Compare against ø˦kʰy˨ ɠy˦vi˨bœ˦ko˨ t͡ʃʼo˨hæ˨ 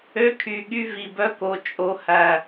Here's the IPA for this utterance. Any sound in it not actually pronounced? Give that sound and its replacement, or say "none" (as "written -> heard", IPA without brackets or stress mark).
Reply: none